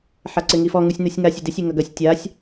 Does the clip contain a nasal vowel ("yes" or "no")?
no